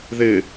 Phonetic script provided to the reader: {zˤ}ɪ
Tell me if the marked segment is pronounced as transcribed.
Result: no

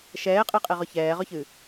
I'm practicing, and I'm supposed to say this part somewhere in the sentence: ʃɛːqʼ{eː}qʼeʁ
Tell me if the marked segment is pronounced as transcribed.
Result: no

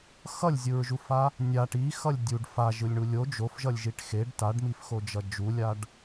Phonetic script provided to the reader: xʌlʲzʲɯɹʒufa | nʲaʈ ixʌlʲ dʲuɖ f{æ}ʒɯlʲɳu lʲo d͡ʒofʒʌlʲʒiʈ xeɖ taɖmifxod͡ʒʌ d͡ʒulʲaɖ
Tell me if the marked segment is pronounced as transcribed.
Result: no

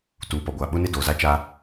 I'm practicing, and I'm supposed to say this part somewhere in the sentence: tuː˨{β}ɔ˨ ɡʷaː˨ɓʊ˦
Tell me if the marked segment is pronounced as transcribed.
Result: no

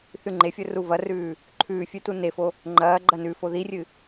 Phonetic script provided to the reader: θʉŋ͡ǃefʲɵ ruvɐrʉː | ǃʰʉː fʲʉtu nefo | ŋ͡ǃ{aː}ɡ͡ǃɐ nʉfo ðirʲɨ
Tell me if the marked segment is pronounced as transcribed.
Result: no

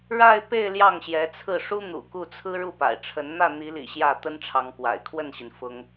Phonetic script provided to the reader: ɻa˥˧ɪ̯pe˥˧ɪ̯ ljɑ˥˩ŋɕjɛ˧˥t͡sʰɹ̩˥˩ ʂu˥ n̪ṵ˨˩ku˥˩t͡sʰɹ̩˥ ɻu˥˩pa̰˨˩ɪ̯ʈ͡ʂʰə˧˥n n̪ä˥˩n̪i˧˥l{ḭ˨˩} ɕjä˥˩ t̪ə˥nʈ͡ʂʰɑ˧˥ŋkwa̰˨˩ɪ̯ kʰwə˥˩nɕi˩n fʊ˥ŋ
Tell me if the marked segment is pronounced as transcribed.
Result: yes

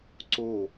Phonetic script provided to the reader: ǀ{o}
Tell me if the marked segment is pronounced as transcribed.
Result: yes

